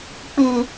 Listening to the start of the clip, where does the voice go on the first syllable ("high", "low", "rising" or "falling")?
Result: low